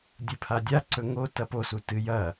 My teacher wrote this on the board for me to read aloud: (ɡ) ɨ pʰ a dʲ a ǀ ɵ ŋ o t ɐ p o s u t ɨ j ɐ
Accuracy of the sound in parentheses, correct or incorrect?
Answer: incorrect